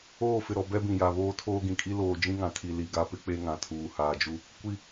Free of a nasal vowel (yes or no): no